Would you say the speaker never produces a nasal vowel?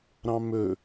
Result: no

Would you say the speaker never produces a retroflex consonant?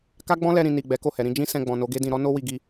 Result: yes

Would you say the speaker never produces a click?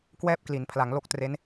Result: yes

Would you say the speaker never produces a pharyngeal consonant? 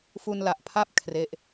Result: yes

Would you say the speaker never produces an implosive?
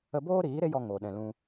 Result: no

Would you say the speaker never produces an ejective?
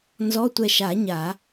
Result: yes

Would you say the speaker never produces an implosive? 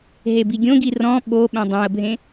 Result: no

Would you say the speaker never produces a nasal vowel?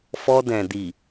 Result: no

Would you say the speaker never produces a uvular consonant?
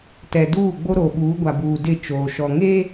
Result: yes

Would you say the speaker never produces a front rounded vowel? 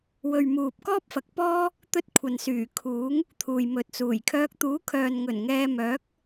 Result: no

